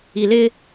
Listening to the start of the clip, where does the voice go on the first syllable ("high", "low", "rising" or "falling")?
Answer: low